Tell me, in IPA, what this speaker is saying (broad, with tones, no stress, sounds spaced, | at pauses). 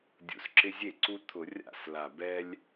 dʲ ṵ˨˩ s ǁ ɪ˦ zʲ e˥˩ ǀ u˦ t̪ʰ ʊ˧˩˧ rʲ a̰˥˩ s l a˨˩ b ɛ˦ lʲ